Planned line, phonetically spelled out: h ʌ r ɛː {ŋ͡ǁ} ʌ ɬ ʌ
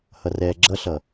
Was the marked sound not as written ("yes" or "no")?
yes